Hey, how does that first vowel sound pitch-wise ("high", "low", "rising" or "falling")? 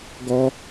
high